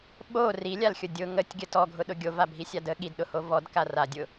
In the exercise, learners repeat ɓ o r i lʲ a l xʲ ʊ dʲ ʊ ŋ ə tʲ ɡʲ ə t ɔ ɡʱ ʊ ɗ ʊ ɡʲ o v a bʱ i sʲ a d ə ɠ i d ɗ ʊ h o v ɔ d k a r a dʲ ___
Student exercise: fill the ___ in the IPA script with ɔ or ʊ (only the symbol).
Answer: ʊ